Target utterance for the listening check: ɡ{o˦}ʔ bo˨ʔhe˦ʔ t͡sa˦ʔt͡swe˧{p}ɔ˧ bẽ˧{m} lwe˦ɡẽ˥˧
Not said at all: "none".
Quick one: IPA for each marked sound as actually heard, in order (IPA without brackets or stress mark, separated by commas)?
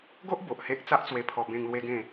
o˦, pʰ, ŋ